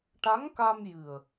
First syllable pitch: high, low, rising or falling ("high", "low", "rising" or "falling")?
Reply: rising